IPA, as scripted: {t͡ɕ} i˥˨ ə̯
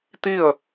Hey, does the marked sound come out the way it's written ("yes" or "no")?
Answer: no